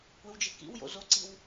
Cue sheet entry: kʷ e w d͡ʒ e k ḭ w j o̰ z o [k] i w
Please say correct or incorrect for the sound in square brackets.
incorrect: ǀ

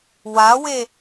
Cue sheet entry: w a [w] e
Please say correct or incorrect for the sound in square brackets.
correct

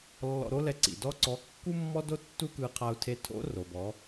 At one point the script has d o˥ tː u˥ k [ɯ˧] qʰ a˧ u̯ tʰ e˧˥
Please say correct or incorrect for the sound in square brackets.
correct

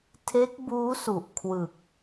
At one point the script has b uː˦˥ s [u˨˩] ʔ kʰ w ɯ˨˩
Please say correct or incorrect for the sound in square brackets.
correct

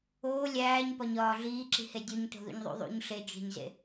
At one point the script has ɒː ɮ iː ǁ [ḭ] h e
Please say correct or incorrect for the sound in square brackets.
incorrect: i̤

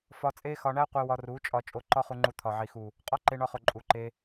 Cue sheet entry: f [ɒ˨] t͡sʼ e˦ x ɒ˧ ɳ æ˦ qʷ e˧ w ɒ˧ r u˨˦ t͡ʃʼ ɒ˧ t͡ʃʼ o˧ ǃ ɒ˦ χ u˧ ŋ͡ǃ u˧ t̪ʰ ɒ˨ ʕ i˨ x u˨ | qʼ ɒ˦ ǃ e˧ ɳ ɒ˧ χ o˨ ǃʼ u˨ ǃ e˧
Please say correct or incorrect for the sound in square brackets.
incorrect: ɒ˧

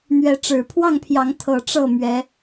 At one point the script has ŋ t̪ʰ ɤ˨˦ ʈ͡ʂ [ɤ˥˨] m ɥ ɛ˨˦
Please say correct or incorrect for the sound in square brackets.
correct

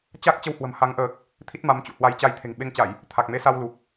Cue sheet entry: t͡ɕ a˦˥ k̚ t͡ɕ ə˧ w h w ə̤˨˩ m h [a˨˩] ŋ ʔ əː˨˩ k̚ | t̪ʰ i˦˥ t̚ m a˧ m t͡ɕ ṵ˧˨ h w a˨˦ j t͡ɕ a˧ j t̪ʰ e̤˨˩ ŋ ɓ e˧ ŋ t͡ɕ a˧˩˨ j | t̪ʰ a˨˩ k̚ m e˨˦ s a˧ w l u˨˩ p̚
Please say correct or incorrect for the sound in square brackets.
incorrect: a˨˦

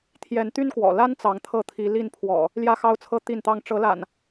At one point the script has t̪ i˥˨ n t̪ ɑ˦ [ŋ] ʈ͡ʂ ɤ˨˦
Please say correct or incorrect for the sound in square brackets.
correct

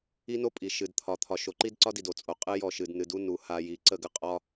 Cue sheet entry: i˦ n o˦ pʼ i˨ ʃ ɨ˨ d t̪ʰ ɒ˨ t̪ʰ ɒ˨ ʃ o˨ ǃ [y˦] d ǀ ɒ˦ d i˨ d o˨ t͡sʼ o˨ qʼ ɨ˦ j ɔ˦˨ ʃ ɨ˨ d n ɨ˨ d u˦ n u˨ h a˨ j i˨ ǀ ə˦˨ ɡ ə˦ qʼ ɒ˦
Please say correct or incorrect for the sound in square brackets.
incorrect: i˦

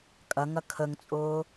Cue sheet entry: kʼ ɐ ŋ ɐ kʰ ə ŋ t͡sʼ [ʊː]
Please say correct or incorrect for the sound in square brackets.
correct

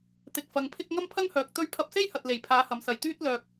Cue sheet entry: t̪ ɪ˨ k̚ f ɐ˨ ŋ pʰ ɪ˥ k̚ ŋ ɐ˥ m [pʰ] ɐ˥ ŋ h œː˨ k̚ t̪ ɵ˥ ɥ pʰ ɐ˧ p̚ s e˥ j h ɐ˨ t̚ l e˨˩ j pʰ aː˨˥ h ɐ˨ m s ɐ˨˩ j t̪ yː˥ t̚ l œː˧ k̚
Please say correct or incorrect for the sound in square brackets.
correct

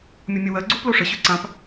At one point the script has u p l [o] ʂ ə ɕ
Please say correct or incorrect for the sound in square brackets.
correct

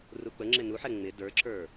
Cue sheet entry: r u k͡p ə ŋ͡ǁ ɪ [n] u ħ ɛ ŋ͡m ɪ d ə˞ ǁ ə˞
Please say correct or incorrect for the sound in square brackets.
correct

